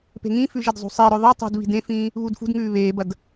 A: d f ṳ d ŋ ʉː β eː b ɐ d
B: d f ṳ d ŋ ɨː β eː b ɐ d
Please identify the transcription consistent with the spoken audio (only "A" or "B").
A